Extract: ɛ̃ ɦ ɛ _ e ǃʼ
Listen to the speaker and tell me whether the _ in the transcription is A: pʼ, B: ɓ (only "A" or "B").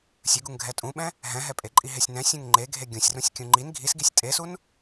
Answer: A